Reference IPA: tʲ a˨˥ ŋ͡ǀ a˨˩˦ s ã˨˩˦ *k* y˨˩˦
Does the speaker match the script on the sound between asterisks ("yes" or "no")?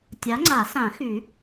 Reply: no